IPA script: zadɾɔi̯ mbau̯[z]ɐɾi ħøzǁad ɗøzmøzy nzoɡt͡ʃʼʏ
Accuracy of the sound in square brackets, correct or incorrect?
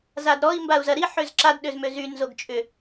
correct